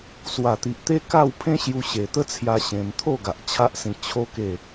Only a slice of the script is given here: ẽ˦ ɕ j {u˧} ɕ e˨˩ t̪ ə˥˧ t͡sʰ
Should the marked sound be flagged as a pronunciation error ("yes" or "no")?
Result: no